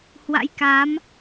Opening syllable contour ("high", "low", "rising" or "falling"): rising